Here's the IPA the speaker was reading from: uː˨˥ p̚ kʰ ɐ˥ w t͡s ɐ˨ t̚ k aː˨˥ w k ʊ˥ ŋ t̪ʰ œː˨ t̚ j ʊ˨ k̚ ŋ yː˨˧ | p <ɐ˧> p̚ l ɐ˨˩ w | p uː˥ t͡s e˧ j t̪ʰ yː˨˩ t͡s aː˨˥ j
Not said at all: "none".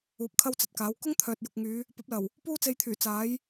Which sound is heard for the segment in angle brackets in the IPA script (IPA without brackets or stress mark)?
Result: ɐ˨˥